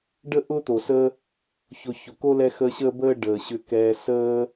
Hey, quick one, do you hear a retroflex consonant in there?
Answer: yes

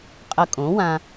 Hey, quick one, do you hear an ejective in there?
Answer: yes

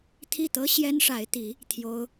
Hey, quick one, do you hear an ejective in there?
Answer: no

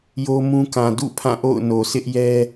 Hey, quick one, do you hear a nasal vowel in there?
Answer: yes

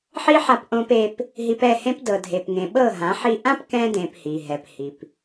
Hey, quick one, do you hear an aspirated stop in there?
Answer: no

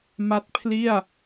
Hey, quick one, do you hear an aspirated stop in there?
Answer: yes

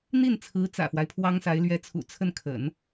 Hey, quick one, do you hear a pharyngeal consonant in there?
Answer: no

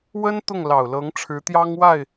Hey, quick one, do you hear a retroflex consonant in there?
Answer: yes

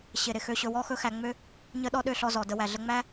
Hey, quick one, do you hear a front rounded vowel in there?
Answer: yes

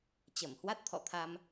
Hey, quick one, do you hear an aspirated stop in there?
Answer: yes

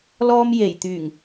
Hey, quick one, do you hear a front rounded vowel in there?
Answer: yes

